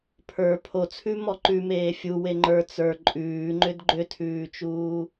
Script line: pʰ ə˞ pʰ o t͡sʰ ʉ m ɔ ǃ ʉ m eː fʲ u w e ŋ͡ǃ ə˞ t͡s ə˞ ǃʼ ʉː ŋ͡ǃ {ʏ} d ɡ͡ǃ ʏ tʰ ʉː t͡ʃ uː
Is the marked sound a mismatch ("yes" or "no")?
no